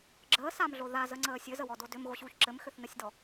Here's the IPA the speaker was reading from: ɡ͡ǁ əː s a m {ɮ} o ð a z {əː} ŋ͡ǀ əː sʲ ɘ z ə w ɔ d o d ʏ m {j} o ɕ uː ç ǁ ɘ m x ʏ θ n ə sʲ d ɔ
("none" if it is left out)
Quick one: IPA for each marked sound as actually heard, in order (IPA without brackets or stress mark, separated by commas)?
ɮ, ə, ɣ